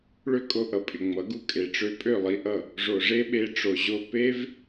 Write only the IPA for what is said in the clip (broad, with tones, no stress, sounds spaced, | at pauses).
ɭ ø˦ kʼ o˧ ʔ ʌ˨ pʼ ɪ˨ ŋ͡m ʌ˨˦ ɡ u˦ kʼ e˨ ʈ͡ʂ ø˧ pʼ ø˦˨ lˠ i˧ ʔ ʌ˦˨ | ʐ o˨ ʐ e˦ ɓ e˧ ʈ͡ʂ o˨ ʑ o˦ p e˦ v